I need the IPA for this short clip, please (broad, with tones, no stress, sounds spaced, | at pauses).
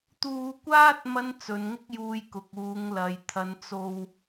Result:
t̪ uː˧ kʷ aː˥ t̚ m ɐ˥ n t͡s ɵ˨˧ n ŋ ɪ˥ k̚ j uː˧ j k ʊ˨ k̚ uː˨˧ ŋ l ɐ˨ j t̪ʰ ɐ˨˧ n t͡s o˧ w